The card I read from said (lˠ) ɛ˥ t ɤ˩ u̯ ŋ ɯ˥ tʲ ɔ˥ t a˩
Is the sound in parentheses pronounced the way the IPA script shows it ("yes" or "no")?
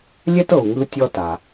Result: no